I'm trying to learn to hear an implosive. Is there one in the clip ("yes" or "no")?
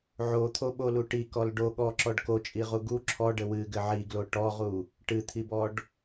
yes